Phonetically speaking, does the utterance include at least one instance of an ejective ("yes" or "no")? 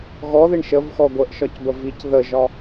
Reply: no